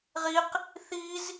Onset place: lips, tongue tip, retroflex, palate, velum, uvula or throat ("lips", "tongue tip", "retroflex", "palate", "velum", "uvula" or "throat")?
uvula